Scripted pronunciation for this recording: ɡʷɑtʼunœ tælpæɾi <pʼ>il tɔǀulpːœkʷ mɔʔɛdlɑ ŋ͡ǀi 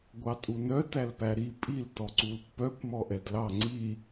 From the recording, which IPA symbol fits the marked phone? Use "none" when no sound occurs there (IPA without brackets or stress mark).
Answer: pʼ